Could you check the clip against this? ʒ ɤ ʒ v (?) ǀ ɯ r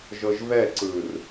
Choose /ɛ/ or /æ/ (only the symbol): ɛ